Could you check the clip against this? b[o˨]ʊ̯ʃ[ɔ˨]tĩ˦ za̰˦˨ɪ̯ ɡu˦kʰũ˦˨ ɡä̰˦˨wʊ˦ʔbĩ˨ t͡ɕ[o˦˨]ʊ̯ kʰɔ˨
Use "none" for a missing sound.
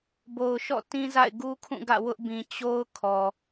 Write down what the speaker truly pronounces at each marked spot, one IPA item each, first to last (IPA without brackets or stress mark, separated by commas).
o˨, ɔ̰˦˨, o˦